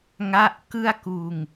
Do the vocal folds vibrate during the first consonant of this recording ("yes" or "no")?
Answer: yes